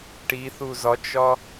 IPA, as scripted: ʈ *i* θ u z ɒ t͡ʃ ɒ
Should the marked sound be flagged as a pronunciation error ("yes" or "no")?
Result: no